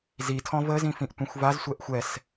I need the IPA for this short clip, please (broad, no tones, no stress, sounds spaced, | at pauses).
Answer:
z i tʰ ɔ̃ v ə z ĩ f ĩ ʔ tʷ ĩ xʷ v a z sʷ ɛ ʔ xʷ ɛ s